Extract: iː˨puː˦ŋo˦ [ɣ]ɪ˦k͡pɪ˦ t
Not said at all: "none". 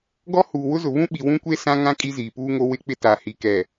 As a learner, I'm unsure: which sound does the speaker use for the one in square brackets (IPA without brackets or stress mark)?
w